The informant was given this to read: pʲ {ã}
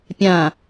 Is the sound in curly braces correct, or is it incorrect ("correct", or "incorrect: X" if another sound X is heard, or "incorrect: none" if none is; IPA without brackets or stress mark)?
correct